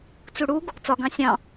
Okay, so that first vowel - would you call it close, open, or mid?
close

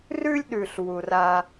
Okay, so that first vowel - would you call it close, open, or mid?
close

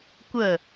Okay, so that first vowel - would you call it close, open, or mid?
mid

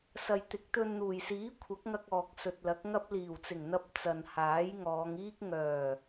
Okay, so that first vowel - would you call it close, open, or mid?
open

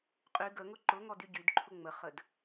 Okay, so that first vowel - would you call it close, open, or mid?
close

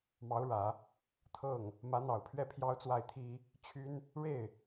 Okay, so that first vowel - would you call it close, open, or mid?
open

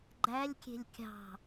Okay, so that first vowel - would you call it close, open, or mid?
open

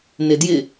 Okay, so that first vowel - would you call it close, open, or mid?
close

